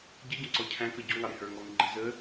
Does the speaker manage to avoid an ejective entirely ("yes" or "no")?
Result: yes